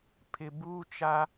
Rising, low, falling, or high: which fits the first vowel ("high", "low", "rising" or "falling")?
low